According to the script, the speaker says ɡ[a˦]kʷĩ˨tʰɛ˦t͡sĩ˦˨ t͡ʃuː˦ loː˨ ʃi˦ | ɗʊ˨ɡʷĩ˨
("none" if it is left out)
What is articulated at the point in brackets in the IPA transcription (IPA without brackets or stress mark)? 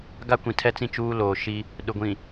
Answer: a˦